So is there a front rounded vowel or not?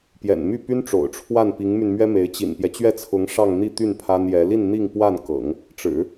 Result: yes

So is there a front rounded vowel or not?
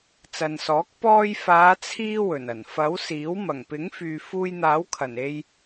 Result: yes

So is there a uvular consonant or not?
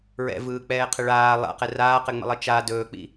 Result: yes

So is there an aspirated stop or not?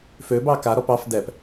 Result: no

